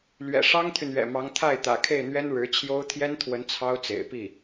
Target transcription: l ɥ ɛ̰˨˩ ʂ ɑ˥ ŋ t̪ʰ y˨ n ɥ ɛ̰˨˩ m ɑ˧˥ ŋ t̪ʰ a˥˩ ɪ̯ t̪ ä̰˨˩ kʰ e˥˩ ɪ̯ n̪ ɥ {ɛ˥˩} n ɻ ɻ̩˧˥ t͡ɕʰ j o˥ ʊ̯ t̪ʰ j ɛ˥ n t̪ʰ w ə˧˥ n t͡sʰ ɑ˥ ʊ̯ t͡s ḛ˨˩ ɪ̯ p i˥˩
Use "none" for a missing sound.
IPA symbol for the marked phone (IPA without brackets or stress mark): ɛ˥